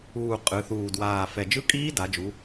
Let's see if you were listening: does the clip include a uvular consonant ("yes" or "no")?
yes